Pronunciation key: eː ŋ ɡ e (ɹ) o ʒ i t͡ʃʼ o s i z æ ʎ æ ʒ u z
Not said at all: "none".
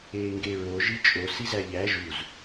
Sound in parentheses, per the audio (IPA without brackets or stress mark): ɹ